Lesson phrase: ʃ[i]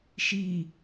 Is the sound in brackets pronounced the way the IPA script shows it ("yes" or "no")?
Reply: yes